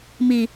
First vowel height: high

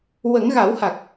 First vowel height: mid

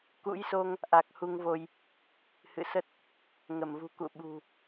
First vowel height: high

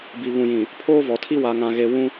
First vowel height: high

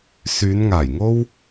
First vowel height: high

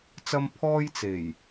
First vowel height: low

